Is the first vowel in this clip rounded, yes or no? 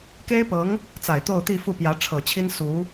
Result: no